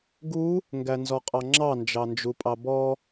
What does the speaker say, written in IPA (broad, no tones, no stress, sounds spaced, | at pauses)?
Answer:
ɡ u | ŋ ɡ æ n z ɔ qʼ ɑ ŋ͡ǁ ɑ n d͡ʒ ɑ n d͡ʒ u pʼ ɑ b ɔ